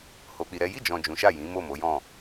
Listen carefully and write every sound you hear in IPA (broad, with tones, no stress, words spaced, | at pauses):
ho˧k͡pi˧ɾɛ˦ ji˦˨d͡ʒɔ̃˨ d͡ʒũ˨˦ʃa˦˨jĩ˨˦ mo˦˨mo˨˦jɔ̃˦˨